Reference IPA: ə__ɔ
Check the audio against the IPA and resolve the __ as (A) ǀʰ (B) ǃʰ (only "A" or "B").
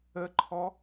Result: B